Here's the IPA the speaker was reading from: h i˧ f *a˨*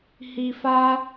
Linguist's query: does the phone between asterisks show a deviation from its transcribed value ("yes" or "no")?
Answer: yes